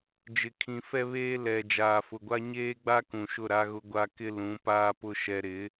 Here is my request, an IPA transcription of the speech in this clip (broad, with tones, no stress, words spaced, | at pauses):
d͡ʒɪ˨kʰĩ˨fɛ˦βeː˦ lɛ˨ d͡ʒaː˨fʊ˨ɡʷa˦ ɲeː˦ɡ͡ba˦ kũ˨ʃʊ˦˨ɾa˦ɣʊ˦ ɡʷa˦kɪ˦ lũ˨˦paː˦pʊ˦ ʃɛ˦ ɾɪ˨˦